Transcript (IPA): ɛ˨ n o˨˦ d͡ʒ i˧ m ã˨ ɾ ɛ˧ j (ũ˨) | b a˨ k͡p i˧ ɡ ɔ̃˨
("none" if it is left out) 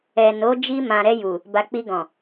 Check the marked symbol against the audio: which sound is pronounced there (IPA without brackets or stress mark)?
u˨